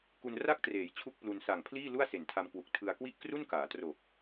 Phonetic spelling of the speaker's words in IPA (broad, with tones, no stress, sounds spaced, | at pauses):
k u˧ n r a˥˩ k̚ t r eː˩˦ j t͡ɕʰ u˥˩ k̚ p l u˧ n s a˨˩ ŋ pʰ l iː˥˩ l u˥˩ a̯ s e˨˩ n tʰ a˧ m k w u˨˩ k̚ tʰ ɯ˧ a̯ k w i˥˩ ʔ k r u˥˩ n k aː˩˦ t r o˨˩ k̚